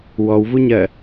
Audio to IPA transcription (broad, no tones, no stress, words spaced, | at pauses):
wɔwvuɲɜ